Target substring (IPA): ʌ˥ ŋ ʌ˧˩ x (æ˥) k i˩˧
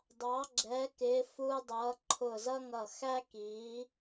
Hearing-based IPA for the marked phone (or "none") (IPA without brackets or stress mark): æ˥